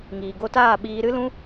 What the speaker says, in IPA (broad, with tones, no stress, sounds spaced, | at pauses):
ŋ iː˨ ɡ o˧ t aː˦˨ ɓ iː˧ ɾ ɨ˦ l ũ˦